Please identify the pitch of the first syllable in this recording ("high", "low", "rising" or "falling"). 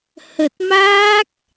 low